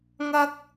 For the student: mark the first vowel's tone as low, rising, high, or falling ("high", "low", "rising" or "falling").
high